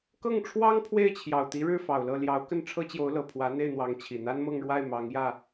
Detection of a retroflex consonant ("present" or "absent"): present